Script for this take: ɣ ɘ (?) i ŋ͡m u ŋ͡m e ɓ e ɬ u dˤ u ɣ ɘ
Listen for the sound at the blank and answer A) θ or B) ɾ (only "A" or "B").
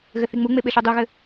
A